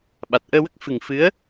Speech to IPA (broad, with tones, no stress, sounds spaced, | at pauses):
ɓ a˨˩ t̚ ʔ əː˧ w ə˦˥ k̚ f ɨ˨˩ ŋ f ɨ˧˥ ə̯